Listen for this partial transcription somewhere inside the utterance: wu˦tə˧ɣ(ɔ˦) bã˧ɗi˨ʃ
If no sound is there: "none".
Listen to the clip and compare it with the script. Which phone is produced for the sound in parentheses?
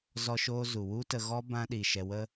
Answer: ɔ˦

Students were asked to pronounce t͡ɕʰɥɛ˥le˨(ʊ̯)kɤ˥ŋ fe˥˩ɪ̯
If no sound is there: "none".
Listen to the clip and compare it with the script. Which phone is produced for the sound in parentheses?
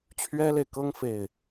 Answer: ɪ̯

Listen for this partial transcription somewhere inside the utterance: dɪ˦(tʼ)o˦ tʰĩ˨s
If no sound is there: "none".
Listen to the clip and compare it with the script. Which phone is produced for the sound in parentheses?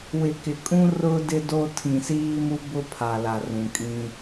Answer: d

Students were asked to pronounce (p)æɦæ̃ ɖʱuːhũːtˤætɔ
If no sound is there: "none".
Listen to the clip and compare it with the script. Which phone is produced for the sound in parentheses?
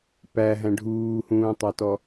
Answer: p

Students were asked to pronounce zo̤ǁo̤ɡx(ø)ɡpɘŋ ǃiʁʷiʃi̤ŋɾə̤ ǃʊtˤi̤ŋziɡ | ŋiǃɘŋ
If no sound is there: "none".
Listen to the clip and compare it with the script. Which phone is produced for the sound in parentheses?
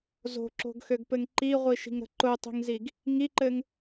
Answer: ø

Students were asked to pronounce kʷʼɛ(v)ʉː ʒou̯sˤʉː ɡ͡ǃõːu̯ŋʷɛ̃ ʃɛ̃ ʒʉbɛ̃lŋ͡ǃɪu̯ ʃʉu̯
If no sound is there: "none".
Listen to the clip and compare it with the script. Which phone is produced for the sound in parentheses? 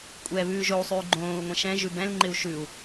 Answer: β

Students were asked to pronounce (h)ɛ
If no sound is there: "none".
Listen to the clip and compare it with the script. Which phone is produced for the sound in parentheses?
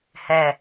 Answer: h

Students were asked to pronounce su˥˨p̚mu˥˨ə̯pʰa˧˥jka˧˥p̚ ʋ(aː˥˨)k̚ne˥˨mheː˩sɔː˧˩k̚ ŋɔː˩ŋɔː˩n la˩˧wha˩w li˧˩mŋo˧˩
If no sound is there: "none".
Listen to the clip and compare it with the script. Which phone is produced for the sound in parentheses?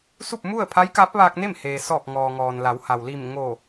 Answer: aː˧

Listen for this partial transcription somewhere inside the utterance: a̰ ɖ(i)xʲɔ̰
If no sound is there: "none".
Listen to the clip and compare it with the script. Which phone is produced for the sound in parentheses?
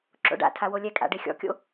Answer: e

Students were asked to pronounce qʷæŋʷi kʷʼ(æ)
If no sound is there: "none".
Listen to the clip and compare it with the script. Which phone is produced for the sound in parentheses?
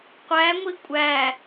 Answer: æ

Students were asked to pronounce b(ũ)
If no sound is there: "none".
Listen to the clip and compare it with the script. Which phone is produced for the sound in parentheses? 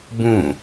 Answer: ũ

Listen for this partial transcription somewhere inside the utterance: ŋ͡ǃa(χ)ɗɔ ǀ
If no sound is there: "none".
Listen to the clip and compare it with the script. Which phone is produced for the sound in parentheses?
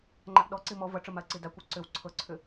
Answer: ʔ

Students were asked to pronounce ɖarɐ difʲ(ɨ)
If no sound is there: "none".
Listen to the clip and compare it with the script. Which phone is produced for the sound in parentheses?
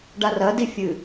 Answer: ɨ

